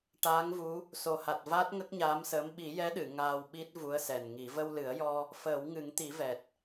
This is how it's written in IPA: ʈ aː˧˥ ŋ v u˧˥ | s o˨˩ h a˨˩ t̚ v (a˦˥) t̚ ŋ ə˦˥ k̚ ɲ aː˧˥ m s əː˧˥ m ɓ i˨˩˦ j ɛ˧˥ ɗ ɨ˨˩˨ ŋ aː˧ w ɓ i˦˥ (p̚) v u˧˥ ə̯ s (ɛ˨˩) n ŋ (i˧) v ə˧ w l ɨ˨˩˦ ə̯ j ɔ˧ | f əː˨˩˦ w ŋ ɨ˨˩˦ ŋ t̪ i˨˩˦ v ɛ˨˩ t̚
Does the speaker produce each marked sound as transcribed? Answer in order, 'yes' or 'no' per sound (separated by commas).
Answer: no, no, yes, no